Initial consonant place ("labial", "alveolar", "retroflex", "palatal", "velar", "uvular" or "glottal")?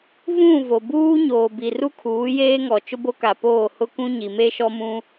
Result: labial